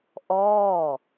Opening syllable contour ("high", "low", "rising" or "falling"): falling